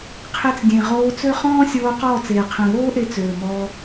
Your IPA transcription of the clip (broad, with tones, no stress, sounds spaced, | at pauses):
qʰ e˧ t͡s dʲ ẽ˨ ʁ oː˧ t͡s ø˦ χ ɔ̃ː˦ sʲ oː˧ q ɔː˦˨ t͡s eː˨ qʰ ɛ̃˨ β oː˦ ʔ e˧ t͡s øː˨ m ɔː˧